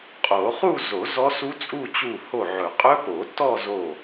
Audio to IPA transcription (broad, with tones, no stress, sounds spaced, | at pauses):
qʼ o˨˩˦ χ u˥˧ z o˨˩˦ z ɔ˦˥ s u˦˥ t͡sʼ u˥˧ t͡ɕ u˧˩ h o˧˩ ʕ ɵ˨˩˦ qʼ ɵ˦˥ p o˨˩˦ t ɔ˥˧ z o˧˩